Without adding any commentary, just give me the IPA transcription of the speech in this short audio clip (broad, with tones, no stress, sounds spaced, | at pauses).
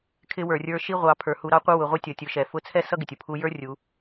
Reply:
kʰ ɪ˧ w ə˞˩ rʲ ə˞˧ ʃ i˧ ʁʷ ɑ˩˧ pʰ ə˞˩ h u˩˧ ɾ ɑ˧˥ qʷ ʌ˥ w ʊ˩˧ ʁʷ ɛ˥ tʲ ʌ˩˧ tʲ ʊ˩˧ ʃ ɛ˩ f ʊ˧˥ t͡sʰ ɛ˥ s ʌ˥ ɡ ɪ˩ tʲ ʊ˩ pʰ u˧ j ə˞˥ rʲ u˩˧